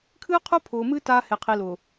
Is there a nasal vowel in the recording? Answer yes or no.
no